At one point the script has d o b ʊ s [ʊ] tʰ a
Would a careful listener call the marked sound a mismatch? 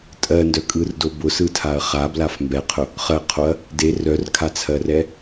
yes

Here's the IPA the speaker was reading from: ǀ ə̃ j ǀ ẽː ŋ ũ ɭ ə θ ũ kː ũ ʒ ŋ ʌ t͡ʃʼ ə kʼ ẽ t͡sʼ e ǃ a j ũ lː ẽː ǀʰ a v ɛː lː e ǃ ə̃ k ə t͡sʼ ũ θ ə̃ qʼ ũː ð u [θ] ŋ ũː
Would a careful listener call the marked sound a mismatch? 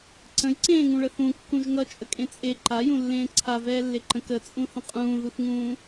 no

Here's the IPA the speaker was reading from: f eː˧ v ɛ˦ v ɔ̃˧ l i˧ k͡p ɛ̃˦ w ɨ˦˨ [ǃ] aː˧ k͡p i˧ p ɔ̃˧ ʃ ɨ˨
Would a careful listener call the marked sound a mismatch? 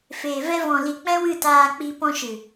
yes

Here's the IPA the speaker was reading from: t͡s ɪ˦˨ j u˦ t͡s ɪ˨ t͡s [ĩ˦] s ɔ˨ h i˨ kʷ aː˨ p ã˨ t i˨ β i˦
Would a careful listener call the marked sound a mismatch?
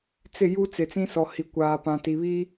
no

